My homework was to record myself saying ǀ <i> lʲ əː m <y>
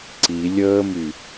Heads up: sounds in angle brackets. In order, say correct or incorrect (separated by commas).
correct, correct